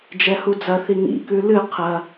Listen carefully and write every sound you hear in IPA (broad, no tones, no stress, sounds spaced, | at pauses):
d͡ʒ ɛ h u d͡z ɐ θ i ŋ ḭ k ʉ l ɨ qʰ ɐ